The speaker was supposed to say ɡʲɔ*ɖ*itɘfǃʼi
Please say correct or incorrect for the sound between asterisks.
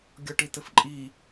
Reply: incorrect